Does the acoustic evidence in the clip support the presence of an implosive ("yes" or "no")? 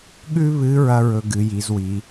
yes